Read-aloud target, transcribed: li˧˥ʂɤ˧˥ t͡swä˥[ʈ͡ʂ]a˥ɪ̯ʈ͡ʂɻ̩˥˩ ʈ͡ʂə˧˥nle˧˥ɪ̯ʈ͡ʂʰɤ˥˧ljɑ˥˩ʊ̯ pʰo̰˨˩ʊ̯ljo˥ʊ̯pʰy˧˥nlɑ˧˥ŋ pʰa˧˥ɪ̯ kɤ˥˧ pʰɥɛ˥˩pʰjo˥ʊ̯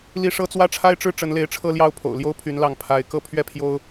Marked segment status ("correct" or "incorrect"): incorrect